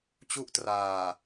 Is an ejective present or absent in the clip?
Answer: absent